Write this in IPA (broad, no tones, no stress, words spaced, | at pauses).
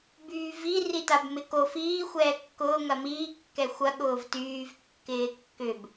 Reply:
byːvi ritabmɪko fiː xʷɛːkːʊː ŋɐmiː kːɛxʷɐ ɠʊːvtyːv kːɪːkːʏb